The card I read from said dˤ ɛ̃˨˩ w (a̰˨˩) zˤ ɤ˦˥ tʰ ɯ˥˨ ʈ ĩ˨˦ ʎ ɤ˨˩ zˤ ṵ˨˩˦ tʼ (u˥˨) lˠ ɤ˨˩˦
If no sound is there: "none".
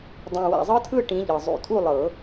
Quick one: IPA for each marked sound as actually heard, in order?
a̰˨˩, u˥˨

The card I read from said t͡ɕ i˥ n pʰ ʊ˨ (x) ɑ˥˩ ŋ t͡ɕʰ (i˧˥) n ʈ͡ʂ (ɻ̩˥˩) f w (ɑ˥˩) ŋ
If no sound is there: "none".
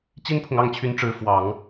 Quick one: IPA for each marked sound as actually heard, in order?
ŋ, y˧˥, ɻ̩˧˥, ɑ˨˩˦

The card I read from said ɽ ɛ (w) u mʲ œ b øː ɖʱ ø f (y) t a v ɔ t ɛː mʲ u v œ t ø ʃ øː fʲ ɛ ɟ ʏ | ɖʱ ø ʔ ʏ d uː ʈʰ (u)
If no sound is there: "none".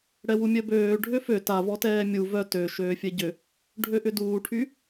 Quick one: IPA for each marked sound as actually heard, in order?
w, ø, y

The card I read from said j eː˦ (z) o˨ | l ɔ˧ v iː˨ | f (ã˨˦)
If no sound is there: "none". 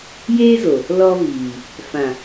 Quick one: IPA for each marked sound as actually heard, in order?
z, ã˨

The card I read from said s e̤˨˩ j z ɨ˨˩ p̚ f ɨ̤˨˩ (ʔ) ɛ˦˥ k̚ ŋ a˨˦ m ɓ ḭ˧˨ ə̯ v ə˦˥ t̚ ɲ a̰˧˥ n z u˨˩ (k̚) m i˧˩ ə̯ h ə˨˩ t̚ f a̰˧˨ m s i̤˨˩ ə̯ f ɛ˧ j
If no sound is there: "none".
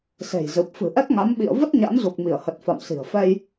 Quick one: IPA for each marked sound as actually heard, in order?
ʔ, k̚

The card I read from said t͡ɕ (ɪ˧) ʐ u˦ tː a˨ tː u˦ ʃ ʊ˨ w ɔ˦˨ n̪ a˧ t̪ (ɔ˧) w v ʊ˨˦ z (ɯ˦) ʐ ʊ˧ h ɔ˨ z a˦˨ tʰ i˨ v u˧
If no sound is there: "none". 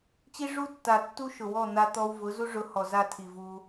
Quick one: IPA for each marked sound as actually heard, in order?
i˧, ɔ˧, u˦

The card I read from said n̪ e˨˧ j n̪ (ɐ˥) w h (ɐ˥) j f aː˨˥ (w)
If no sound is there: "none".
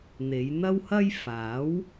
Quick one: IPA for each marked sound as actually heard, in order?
ɐ˥, ɐ˥, w

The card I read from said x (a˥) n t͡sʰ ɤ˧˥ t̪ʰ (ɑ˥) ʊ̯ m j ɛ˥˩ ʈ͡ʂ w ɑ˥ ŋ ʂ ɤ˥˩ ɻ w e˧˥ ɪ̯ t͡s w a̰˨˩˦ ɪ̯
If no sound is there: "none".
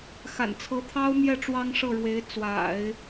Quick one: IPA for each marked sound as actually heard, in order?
a̰˨˩, ɑ˥

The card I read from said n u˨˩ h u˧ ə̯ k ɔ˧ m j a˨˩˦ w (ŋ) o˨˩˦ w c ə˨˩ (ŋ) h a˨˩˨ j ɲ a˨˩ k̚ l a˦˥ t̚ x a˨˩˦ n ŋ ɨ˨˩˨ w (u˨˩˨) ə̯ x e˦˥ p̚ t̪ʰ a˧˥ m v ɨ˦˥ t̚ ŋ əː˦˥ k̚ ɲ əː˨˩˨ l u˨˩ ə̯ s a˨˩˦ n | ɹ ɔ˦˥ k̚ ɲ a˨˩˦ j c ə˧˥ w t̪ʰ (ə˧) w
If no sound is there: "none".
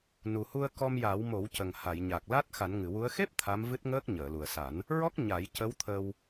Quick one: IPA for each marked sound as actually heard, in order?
m, ŋ, u˧˥, ə˧

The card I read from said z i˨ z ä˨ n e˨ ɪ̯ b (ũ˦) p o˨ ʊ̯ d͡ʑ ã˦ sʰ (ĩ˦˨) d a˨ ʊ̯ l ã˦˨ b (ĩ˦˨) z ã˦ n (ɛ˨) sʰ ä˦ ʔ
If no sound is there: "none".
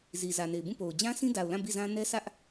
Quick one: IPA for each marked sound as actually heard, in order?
ũ˦˨, ĩ˦, i˦˨, ɛ˦

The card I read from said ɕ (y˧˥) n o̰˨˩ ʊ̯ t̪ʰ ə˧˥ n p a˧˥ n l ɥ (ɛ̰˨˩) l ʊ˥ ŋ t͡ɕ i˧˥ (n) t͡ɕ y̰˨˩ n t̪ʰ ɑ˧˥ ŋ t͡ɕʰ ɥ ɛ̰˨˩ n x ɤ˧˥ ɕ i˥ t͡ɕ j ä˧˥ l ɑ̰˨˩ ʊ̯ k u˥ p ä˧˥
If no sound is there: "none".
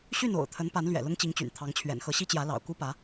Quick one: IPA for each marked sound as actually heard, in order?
y˥˩, ɛ̰˨˩, ŋ

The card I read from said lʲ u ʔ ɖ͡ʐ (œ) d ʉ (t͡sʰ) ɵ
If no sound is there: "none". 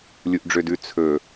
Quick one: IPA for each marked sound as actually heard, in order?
ø, t͡sʰ

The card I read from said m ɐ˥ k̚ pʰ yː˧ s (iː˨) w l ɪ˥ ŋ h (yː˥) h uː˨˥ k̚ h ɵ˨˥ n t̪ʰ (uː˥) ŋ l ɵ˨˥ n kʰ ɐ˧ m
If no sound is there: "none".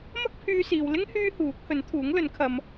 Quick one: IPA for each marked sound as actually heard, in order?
iː˨, yː˥, uː˨˥

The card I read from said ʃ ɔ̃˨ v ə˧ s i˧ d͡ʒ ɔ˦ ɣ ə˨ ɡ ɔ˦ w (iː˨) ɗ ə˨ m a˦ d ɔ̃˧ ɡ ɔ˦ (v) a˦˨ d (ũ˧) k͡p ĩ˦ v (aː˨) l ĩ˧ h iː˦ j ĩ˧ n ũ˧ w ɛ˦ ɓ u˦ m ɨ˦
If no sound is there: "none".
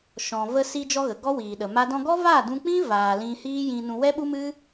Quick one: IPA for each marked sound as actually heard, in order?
iː˨, v, ũ˧, aː˨

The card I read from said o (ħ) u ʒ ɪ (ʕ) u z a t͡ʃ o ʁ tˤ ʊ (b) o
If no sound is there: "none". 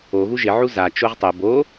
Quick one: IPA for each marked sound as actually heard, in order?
ɣ, ʕ, b

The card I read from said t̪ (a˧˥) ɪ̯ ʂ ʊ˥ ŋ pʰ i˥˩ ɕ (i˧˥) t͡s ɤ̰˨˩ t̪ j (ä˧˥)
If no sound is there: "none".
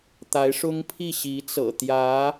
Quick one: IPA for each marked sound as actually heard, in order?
a˧˥, i˧˥, ä˧˥

